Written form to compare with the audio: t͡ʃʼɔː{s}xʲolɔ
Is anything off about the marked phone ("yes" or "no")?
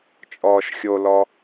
yes